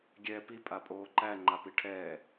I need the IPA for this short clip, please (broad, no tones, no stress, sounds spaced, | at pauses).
ɡʲ ɛː p i pʼ a pʼ oː ǃ æ ŋ͡ǃ a p i ʈʰ ɛː